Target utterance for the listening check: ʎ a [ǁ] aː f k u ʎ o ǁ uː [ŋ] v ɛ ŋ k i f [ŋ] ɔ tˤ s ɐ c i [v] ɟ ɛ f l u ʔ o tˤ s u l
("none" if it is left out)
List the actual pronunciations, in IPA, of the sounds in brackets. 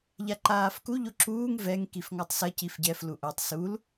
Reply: ǃ, ŋ, ŋ, f

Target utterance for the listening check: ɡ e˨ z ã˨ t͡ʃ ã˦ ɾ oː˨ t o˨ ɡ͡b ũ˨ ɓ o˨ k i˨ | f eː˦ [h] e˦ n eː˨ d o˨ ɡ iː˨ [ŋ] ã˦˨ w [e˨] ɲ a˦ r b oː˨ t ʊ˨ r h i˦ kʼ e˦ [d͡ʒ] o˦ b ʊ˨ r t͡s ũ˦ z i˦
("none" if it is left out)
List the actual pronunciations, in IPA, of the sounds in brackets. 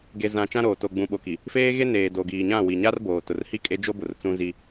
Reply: ɣ, ɲ, i˨, d͡ʒ

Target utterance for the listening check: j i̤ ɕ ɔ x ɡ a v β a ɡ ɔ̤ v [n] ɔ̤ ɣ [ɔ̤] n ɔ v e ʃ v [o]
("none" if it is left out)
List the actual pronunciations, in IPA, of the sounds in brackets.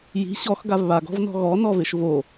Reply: n, ɔ, o

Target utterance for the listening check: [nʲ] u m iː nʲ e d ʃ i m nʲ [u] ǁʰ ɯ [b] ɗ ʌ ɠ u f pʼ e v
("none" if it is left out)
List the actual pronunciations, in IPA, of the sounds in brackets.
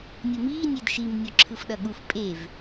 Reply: nʲ, o, f

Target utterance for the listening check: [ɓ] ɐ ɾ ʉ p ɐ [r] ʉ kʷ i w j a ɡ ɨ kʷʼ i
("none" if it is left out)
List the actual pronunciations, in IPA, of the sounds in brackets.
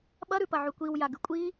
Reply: ɓ, ʕ

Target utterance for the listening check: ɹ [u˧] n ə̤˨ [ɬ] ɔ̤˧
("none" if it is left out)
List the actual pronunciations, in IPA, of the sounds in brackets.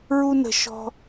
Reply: u˧, ʃ

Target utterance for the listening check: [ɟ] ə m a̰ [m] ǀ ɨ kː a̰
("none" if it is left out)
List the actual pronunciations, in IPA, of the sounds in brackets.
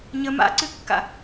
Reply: ɲ, none

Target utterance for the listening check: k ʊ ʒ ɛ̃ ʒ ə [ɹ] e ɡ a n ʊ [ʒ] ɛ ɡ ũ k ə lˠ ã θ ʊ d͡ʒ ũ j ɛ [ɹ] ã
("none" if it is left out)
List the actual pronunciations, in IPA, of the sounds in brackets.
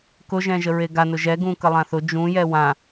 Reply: ɹ, ʒ, w

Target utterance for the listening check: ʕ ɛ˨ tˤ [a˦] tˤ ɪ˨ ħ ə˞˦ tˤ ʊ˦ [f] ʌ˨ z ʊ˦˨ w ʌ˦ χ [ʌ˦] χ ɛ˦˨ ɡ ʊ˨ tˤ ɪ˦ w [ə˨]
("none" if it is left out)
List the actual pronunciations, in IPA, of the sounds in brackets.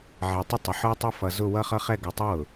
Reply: ə˦, f, ʌ˦, ʊ˨

